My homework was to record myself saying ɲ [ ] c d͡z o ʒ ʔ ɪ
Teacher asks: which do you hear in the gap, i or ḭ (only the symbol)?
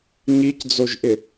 i